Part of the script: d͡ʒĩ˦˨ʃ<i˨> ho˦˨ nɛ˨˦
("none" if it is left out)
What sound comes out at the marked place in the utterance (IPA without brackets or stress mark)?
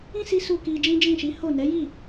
i˨˦